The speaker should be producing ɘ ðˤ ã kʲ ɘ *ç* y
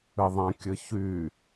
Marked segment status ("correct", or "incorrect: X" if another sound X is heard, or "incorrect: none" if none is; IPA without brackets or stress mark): correct